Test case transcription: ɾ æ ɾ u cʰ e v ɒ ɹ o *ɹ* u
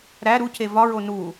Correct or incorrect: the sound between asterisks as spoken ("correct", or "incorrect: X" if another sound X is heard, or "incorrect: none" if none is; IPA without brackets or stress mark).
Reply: incorrect: n